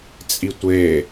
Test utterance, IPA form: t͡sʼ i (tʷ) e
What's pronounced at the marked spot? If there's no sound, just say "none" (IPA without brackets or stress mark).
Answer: tʷ